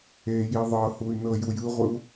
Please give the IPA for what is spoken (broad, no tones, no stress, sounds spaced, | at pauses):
e j i ðˤ ɤ h u y̯ n ɤ j u j ɯ ʁʷ ɯ u̯